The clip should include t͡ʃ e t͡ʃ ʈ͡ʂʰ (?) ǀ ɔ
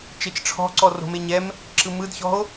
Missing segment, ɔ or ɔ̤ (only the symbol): ɔ̤